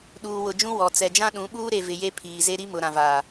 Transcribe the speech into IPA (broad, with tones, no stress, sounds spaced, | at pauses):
ɗ uː˨ w ʊ˨ d͡ʒ ũ˦ w ɔ˨ t͡s ɛ˨ d͡ʒ ã˦ ɗ ũ˨˦ ɓ uː˦ ɾ e˨ v ɪ˨ j e˦ pʰ iː˨ z e˦ ɾ i˦ m ʊ˨ ɾ ã˨ v aː˨